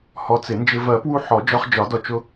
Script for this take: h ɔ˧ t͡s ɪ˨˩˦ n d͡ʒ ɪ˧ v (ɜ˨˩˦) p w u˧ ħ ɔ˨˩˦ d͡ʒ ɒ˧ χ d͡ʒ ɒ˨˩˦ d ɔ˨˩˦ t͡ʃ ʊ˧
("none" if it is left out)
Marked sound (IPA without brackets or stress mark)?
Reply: ɜ˨˩˦